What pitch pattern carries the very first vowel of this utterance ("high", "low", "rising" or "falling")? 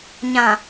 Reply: low